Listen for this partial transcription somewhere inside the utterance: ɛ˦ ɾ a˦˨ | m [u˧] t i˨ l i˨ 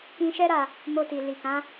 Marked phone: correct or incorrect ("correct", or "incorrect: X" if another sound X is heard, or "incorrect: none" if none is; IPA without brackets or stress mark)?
incorrect: o˧